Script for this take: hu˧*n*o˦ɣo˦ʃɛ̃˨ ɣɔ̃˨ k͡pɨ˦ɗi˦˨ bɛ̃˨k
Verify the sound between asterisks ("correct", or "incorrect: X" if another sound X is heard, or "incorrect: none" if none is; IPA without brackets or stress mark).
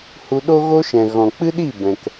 incorrect: ɗ